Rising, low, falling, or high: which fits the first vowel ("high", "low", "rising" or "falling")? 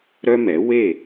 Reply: high